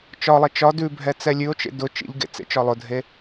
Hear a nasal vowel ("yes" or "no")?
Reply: no